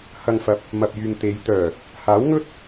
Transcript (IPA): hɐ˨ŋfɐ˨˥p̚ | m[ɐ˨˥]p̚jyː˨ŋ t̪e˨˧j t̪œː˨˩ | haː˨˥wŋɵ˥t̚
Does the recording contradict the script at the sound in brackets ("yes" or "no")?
yes